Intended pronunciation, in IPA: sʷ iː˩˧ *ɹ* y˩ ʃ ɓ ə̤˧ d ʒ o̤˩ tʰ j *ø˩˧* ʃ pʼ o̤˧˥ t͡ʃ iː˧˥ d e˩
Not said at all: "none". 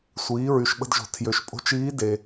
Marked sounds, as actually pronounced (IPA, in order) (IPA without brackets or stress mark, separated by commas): ɹ, ø˩˧